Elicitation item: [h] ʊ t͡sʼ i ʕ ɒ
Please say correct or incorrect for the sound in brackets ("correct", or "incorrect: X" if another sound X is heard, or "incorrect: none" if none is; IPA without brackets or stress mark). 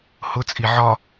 correct